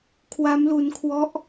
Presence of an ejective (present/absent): absent